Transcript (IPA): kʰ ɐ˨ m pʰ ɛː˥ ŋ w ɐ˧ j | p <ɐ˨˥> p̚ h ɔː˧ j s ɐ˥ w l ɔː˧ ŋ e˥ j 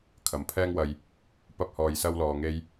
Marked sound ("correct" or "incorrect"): incorrect